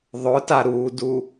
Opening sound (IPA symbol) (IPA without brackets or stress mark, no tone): ðˤ